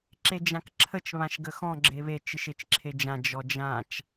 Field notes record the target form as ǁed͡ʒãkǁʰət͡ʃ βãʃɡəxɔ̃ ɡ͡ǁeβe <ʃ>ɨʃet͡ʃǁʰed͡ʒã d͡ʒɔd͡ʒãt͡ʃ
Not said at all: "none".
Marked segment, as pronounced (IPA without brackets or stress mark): t͡ʃ